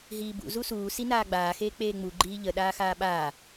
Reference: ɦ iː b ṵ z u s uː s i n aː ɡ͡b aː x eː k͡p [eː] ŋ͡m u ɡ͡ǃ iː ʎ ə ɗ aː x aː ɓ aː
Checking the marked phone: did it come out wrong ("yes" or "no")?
no